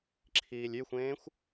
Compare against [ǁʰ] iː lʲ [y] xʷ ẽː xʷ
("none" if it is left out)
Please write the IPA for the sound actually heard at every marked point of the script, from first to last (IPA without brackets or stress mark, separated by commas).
ǁʰ, y